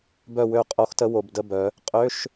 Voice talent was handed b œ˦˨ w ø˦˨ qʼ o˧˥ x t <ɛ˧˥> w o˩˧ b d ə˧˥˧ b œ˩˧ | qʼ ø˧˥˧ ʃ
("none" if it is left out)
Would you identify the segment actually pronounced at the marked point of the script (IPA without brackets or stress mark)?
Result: ə˧˥